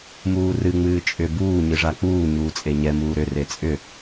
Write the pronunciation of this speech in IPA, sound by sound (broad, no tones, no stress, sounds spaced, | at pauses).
m uː r ɨ ŋ͡m ɨː t͡ʃʼ ʏ b uː ɲ ɨ ʐ a k͡p uː ɲ uː t͡sʼ e ɲ ɛ m uː ɾ ʏ r e t͡sʼ ʏ